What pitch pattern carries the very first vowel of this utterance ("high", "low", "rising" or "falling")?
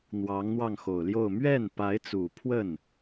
rising